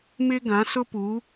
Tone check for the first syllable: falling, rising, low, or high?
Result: high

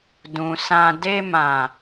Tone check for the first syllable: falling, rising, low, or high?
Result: low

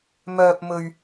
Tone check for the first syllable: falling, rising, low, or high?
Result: high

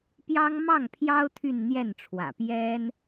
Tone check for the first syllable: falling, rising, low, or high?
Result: high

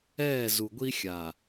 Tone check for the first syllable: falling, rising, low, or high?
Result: falling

